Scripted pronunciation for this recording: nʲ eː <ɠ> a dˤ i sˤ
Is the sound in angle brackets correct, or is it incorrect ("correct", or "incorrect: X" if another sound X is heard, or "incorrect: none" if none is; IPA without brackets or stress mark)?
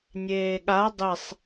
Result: correct